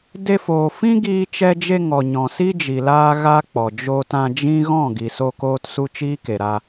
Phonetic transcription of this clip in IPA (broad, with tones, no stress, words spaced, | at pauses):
de˧foː˨ fĩ˦ɡiː˧t͡ʃɛ˧d͡ʒe˧ ŋɔ˨ɲɔ̃˨ si˦d͡ʒi˨ laː˦ɣa˦k͡pɔ˨ d͡ʒoː˧tã˧d͡ʒĩ˦ ɣɔ̃˦˨ɡi˨ so˦koː˦t su˦t͡ʃiː˦ke˨ɾa˧